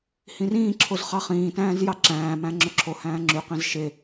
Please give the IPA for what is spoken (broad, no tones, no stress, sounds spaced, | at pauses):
h ĩ r ĩː ǁʰ o z χ ɑ χ ĩː t æ̃ː z j ɑ ǁ æ̃ː m æ̃ ŋ͡ǁ ø ǁʰ o h æ̃ː ŋ͡ǁ y q ĩ z ʃ e